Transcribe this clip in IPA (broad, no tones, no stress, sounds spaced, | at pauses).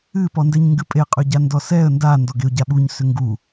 ɨ p ɔ n d ɛ ɲ ŋ ɡ ɨ pʼ e qʼ ø ɟ a n d ɔ s ɛ ə̯ n d a n d ɔ ɡ e ʊ̯ ɟ a ɓ u ɲ s ʏ ŋ ɡ u